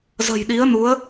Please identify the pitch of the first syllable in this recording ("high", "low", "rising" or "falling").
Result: low